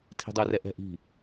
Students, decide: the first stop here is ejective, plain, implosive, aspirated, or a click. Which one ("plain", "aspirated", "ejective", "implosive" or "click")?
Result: aspirated